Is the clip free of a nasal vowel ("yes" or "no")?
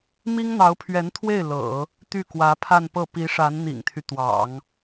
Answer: yes